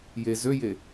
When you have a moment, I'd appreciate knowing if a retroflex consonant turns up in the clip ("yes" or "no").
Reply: no